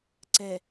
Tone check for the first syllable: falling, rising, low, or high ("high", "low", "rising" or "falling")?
low